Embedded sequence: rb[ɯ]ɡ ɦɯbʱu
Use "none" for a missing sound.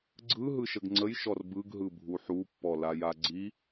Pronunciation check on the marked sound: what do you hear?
ɯ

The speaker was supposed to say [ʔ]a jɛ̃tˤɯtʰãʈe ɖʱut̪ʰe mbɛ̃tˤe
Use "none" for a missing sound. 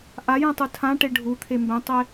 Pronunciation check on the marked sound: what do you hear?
ʔ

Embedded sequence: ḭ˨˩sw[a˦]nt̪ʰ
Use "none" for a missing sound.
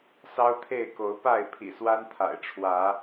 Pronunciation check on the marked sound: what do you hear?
a˦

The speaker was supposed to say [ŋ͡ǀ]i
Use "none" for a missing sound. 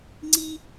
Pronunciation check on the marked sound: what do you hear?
ŋ͡ǀ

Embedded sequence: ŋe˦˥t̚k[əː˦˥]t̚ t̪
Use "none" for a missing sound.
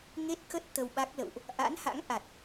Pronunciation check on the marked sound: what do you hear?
ə˦˥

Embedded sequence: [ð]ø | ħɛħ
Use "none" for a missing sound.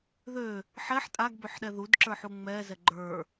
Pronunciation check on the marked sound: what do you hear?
ð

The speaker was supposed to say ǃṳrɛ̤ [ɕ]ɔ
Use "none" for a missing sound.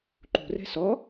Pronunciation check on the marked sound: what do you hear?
s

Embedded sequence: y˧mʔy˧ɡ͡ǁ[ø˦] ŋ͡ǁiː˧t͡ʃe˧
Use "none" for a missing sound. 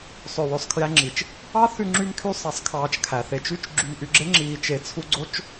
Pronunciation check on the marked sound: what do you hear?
e˦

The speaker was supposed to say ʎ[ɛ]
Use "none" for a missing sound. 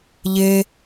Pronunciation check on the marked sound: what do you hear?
e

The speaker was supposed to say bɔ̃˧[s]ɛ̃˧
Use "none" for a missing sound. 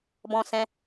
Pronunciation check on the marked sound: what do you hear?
s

